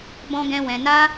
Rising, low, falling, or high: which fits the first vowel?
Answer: high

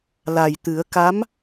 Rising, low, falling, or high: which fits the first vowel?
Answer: low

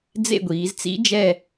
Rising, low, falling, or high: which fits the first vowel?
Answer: falling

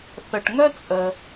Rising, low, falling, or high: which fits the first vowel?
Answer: low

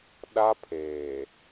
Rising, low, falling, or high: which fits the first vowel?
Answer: high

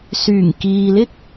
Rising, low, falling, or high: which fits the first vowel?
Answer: low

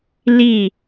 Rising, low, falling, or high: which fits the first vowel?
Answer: falling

